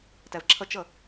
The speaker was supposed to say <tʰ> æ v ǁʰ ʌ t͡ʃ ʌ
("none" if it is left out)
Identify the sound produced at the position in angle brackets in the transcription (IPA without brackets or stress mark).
t